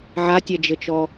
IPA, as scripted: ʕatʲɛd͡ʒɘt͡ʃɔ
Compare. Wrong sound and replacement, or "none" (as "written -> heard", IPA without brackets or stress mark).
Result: none